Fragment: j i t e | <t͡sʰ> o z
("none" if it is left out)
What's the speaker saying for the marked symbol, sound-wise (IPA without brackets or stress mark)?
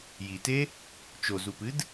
t͡ʃ